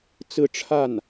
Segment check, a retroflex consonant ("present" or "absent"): present